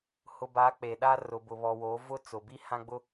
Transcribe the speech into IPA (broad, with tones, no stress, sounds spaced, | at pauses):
h ʊ˨ b a˨˦ k͡p e˨ ɗ a˦ r ʊ˨ b ʊ˨ β ɔ˨ w o˨˦ v ʊ˦ t͡s ʊ˨ b i˦ h ã˦ ɡ͡b ʊ˦